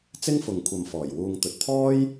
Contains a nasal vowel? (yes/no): no